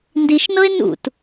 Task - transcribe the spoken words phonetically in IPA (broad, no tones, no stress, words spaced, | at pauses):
ndiʃnɤe̯ nṵt